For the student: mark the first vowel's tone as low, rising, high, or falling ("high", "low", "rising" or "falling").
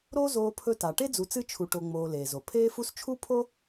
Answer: high